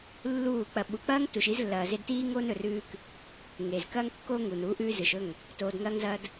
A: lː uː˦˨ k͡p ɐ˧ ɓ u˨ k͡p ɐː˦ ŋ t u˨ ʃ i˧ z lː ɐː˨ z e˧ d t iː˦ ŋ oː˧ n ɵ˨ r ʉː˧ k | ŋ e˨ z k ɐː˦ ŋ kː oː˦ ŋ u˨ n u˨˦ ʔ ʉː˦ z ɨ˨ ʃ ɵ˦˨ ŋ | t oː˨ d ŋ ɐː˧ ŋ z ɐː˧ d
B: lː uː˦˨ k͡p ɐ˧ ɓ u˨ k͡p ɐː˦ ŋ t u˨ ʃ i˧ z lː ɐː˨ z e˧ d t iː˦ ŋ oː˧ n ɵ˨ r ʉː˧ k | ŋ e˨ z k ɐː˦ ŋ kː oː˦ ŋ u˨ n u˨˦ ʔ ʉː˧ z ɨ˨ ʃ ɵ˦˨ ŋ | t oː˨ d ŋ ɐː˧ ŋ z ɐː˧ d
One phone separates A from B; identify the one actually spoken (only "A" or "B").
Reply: B